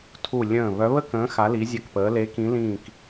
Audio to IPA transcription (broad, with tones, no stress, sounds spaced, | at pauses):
tʰ u˧˩ lʲ ə̃ː˧˩ β œ˨˦ β ə˥˧ k ə̃ː˨˦ x a˨˦ l i˨˦ zʲ ɐ˧˩ k p əː˨˦ l e˨˦ k ĩ˨˦ l ĩː˧˩ k